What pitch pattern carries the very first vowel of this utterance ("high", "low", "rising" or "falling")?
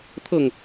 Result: falling